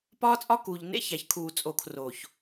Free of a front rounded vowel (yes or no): yes